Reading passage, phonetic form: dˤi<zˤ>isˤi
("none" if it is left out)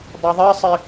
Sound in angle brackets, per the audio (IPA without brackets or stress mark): ðˤ